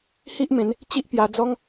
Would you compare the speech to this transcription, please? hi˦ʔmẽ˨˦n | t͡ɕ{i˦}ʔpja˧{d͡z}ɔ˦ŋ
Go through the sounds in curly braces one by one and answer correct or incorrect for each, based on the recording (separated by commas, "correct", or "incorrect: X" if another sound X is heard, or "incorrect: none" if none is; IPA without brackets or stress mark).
correct, correct